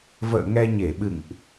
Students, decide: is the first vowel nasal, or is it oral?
oral